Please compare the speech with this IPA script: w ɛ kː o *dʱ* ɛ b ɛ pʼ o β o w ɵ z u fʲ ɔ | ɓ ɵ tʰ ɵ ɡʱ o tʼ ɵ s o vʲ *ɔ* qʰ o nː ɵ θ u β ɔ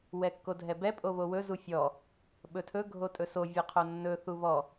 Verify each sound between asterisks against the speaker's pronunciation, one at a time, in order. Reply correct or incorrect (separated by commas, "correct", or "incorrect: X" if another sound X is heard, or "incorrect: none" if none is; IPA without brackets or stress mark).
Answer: correct, incorrect: o